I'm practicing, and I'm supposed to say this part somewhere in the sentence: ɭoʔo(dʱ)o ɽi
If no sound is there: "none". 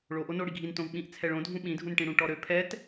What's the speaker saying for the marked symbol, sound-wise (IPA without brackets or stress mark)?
n